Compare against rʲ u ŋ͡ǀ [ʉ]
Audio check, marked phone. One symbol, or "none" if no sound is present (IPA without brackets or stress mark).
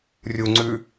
ʉ